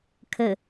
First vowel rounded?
no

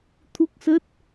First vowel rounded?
yes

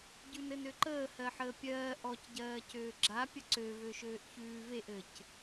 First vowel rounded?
yes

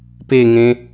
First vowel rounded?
no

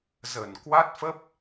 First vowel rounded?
no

